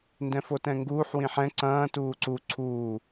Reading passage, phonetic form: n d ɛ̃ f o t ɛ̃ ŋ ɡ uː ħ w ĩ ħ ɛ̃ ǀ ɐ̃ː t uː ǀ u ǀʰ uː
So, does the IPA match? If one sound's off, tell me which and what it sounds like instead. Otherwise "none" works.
none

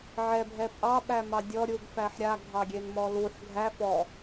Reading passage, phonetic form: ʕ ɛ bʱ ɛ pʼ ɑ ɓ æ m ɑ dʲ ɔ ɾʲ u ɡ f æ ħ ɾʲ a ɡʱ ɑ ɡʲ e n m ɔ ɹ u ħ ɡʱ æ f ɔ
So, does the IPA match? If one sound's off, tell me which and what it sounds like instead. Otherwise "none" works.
ɹ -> l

